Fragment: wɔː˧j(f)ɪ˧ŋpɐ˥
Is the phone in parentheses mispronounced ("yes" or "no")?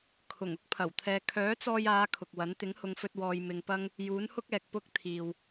yes